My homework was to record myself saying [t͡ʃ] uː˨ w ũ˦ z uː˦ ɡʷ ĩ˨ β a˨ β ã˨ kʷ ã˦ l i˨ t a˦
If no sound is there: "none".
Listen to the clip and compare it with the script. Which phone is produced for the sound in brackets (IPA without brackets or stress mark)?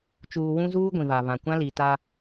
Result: t͡ʃ